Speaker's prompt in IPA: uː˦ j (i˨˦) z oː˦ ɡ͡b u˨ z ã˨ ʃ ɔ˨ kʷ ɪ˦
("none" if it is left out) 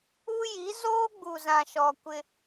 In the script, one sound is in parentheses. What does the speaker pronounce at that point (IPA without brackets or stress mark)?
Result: i˨˦